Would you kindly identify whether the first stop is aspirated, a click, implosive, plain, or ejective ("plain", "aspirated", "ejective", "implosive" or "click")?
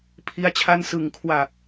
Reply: aspirated